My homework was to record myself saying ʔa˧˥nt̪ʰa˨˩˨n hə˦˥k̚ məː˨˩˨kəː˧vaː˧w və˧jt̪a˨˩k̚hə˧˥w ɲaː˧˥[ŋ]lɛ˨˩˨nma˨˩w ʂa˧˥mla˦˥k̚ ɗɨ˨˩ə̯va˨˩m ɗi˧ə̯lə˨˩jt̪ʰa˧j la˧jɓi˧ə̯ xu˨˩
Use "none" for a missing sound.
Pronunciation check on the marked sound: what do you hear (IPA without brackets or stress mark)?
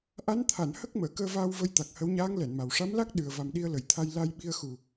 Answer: ŋ